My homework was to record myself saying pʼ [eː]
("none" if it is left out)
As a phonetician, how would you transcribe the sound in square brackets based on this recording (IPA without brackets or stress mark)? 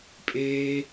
eː